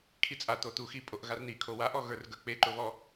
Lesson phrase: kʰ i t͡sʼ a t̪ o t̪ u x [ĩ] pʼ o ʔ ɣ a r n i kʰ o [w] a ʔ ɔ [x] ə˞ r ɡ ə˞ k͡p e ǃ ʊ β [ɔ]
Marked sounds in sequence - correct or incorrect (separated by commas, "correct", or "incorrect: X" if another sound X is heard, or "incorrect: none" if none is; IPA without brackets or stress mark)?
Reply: incorrect: i, correct, incorrect: ɣ, correct